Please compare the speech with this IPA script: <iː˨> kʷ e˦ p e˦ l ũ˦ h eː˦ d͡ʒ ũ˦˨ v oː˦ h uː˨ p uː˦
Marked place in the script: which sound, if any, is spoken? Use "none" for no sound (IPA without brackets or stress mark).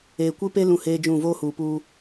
eː˨